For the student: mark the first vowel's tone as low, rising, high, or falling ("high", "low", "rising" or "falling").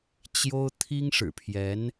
high